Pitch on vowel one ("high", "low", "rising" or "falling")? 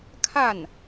falling